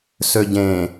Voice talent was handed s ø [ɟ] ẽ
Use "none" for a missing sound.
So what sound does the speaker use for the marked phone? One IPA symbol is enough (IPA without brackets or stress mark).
ɟ